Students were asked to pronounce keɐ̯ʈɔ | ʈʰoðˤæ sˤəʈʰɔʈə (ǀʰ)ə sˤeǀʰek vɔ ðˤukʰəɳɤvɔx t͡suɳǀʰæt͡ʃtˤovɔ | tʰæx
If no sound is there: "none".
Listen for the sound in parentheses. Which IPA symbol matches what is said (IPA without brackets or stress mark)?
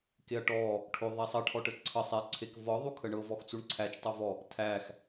ǀʰ